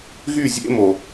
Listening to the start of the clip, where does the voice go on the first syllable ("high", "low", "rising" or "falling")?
falling